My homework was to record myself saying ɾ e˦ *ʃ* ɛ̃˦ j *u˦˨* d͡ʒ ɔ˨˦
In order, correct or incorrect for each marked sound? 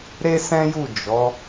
incorrect: s, correct

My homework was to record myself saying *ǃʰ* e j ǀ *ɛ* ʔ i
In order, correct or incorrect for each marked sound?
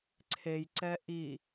incorrect: ǀʰ, correct

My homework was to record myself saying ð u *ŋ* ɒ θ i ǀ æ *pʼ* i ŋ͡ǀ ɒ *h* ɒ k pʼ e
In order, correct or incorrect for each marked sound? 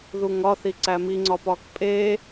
correct, incorrect: m, incorrect: p

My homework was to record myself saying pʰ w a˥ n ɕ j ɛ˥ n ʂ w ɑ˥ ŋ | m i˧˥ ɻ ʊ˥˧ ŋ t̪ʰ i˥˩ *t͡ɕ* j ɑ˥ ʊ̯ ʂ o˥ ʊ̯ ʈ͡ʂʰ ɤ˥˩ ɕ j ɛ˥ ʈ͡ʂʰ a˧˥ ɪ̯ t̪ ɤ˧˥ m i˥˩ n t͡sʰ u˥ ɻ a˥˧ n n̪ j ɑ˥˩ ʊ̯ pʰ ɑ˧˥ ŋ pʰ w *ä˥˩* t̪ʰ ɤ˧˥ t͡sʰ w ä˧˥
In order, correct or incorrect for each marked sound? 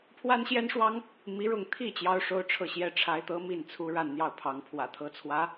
correct, incorrect: ä̰˨˩

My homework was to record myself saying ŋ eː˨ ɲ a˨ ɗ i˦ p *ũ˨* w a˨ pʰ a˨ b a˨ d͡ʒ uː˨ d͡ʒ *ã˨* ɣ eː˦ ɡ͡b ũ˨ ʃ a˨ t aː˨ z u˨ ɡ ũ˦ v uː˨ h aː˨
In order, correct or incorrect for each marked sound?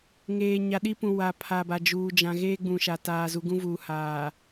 correct, correct

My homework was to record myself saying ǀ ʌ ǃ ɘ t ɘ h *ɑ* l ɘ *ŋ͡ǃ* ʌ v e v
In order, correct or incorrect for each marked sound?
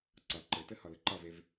incorrect: ʌ, incorrect: ǃ

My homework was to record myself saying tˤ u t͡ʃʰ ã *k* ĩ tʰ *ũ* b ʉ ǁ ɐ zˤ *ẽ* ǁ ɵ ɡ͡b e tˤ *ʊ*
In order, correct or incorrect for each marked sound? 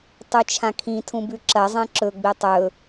incorrect: kʰ, correct, correct, incorrect: ɵ

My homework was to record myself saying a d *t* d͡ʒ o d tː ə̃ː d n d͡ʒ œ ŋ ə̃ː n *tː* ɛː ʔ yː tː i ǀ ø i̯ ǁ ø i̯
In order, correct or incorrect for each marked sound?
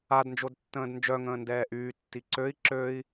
incorrect: n, incorrect: d

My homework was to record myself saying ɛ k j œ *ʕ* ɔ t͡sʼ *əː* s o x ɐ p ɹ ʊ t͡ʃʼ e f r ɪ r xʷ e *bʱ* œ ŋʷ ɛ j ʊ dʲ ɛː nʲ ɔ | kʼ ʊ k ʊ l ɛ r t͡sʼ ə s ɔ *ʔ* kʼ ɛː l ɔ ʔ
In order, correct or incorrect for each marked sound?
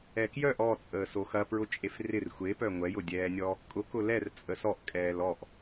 incorrect: ʔ, correct, incorrect: p, correct

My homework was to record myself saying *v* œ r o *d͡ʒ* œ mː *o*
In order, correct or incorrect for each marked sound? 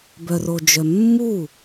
incorrect: b, correct, incorrect: u

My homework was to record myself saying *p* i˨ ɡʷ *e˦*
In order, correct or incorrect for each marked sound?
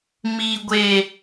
incorrect: m, incorrect: e˨

